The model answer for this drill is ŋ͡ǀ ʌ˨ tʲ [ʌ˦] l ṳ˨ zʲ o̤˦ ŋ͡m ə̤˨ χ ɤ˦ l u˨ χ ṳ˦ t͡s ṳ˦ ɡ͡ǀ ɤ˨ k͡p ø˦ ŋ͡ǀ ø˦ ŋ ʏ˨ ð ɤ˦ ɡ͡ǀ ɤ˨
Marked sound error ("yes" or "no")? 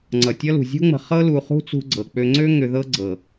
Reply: no